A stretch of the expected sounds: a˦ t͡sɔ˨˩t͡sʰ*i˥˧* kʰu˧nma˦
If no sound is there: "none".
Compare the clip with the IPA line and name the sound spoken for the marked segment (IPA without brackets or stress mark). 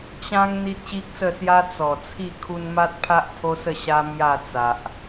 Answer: i˥˧